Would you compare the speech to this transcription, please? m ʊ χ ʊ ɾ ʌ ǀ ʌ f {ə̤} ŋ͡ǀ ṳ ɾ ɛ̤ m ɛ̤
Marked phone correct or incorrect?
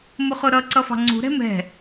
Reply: incorrect